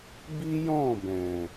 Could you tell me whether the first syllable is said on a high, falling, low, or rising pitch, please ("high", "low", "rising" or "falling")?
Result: high